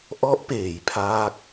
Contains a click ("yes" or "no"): no